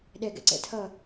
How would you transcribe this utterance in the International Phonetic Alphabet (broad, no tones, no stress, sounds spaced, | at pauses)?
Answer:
ɗ ɛ ɡ ɛ̰ ǀ ɛ̰ tʰ ʌ